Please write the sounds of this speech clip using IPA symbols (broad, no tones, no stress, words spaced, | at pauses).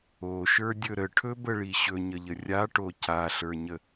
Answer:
oʃə˞dʲɵ ɾəʈʰɵbəɭi ɕɵɲəʎə rʲaʈo caɬə˞ɲə